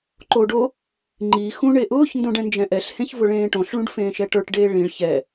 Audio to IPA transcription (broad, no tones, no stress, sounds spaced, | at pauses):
ǃ o ɖ o | ŋ͡ǃ i x ũ ɳ e ʔ ʊː ç n d õ ɖ ɛ̃ n d͡ʒ ɛ̃ ʔ ɛ ɬ h ẽ ç v ʊ ɭ ẽː ʈ õ ɬ ɭ ũ ɖ f ẽː ʃ ɛ ʈ ə˞ ʈ ɖ eː ɭ ĩ ɭ ç ɛ